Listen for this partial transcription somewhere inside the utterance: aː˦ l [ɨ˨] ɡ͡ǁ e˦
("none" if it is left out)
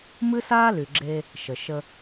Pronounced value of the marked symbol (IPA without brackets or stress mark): y˨